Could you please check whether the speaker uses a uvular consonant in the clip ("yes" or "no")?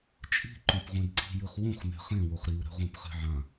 yes